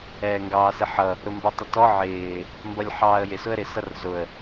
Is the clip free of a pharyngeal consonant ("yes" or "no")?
no